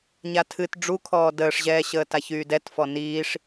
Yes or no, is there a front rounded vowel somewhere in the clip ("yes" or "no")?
yes